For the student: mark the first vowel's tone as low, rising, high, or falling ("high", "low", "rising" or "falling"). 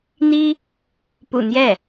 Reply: high